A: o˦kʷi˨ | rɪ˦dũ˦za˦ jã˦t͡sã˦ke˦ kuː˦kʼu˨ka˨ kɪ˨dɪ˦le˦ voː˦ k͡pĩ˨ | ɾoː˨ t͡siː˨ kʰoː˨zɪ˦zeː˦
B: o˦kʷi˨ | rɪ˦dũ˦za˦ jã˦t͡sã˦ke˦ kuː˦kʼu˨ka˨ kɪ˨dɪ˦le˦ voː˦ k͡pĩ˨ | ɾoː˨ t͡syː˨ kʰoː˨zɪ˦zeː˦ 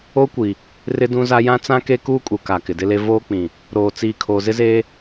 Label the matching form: A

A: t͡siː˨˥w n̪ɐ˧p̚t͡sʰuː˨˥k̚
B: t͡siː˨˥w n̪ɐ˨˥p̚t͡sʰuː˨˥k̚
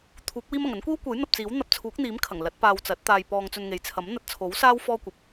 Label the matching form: A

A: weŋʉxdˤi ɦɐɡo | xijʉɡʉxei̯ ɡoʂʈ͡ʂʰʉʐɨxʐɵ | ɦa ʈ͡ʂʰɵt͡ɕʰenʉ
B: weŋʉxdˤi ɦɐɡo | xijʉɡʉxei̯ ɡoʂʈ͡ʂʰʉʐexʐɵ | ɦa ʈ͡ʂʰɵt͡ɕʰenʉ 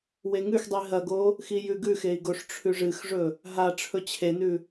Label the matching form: A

